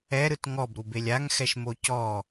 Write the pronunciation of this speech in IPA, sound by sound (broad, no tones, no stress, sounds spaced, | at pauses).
ɛ ɾ ɯ t ŋ ɔ b ɾ u b e lʲ a ŋ x ɛ ʃ m o c ɔ